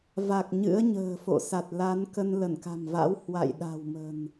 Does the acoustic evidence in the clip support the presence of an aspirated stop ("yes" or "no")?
no